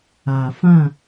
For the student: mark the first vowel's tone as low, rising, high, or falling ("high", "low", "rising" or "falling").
low